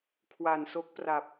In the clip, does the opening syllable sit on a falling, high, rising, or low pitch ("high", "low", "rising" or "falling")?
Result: low